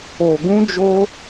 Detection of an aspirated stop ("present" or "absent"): absent